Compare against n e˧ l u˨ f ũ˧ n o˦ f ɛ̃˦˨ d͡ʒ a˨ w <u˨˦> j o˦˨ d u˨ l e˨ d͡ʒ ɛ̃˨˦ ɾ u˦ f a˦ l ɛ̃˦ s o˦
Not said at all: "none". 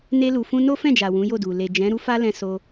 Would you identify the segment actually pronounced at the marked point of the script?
ũ˨˦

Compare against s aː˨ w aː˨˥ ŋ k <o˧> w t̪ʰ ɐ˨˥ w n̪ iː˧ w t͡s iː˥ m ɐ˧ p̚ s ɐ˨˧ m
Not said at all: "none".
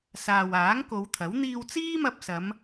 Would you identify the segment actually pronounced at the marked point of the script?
o˨˧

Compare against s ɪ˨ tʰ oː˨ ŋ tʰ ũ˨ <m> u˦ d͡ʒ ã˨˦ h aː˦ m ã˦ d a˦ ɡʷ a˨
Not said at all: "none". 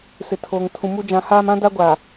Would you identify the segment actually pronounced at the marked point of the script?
m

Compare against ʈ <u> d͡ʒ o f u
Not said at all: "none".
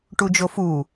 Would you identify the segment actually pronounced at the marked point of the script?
u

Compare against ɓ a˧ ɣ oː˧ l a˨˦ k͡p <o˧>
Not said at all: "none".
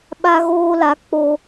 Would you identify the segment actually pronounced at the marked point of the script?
o˧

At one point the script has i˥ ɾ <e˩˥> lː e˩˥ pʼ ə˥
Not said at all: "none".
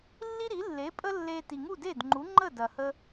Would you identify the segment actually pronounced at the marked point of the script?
i˩˥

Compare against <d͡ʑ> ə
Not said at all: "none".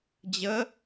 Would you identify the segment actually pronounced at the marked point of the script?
d͡ʑ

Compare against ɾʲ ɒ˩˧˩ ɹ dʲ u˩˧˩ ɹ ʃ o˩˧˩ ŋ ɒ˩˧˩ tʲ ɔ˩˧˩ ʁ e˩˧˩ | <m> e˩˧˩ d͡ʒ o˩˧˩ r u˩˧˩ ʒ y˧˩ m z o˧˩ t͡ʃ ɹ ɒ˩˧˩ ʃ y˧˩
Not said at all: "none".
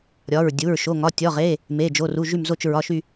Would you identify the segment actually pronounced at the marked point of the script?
m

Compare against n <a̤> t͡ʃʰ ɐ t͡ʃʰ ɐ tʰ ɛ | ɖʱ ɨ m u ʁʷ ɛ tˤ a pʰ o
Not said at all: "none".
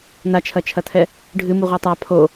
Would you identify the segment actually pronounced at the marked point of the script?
a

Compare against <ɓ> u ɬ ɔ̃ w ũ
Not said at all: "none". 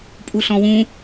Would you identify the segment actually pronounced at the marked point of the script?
pʼ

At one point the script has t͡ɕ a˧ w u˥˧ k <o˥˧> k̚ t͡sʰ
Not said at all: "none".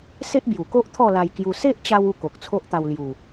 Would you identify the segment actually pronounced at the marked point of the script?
o˨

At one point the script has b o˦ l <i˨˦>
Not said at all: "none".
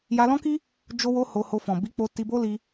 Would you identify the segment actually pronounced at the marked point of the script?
i˧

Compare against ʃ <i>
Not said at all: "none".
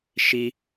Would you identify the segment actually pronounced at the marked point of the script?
i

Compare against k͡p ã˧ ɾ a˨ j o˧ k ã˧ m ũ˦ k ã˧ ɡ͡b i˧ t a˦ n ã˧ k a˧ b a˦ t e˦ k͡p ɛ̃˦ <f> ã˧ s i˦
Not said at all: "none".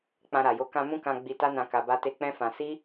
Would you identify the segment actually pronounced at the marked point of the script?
f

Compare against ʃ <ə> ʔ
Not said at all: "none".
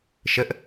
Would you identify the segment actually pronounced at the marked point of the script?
ə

